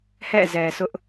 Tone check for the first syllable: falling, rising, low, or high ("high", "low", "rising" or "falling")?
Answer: falling